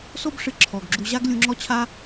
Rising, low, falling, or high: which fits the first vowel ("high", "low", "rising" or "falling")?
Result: high